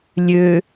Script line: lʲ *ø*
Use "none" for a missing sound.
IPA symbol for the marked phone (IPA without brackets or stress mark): ø